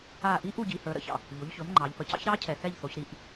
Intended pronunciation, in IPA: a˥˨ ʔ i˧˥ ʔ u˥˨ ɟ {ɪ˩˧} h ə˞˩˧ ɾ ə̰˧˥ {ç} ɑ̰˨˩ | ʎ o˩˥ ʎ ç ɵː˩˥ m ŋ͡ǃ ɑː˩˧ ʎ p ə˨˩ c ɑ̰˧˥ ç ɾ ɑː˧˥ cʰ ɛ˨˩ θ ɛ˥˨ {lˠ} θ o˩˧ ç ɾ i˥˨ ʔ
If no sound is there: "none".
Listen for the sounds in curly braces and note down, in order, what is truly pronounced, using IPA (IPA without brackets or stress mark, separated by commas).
i˩˧, ç, ʎ